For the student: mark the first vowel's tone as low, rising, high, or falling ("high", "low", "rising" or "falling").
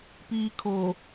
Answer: low